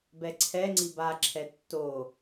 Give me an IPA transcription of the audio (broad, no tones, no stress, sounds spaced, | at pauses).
b ɛ ǀʰ ɛ ŋ͡ǀ i b a ǁʰ ɛ tː o